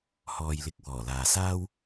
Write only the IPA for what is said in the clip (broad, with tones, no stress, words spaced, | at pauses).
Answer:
hɔː˨jlɪ˨˥k̚ wɔː˨˩laː˨saː˥w